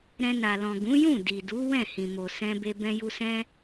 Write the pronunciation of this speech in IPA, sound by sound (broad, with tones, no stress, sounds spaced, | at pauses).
ɾ ɛ̃˧ n a˨ l ɔ̃˨ ɡ ũ˨˦ j ũ˦˨ d i˨ d u˨˦ w ɛ̃˦˨ h ĩ˨ m o˨ s ɛ̃˧ b e˧ b ɛ̃˧ j u˧ s ɛ̃˦